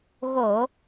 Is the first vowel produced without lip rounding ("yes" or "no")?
no